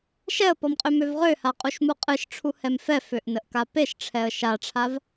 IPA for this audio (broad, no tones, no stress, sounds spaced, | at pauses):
ʃ ɛ ə̯ p ɔ m qʼ ø m ø v ʁ ø h a qʼ u ʃ m u qʼ ɨ ʃ ʈ͡ʂʰ u h ɛ m f ɛ f ø ʔ n ə ʔ k a p e ʃ ʈ͡ʂʰ ɛ ə̯ ʃ a ʈ͡ʂʰ a v